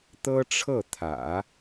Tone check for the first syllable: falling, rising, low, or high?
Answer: high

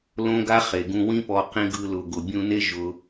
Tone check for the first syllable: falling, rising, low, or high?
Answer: high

